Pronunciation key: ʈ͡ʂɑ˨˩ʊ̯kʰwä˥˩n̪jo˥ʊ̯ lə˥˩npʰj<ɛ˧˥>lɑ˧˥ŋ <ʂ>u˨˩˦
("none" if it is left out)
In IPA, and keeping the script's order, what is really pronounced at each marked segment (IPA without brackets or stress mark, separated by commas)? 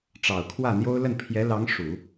ɛ˧˥, ʂ